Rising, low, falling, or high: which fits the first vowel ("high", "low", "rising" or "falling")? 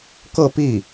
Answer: falling